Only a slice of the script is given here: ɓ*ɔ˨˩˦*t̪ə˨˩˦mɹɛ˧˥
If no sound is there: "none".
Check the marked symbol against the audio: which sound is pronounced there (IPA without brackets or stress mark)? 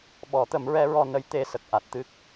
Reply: ɔ˨˩˦